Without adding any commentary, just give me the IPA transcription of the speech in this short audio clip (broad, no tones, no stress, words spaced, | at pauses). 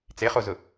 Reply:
t͡seχozʊ